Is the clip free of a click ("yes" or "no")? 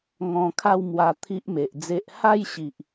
yes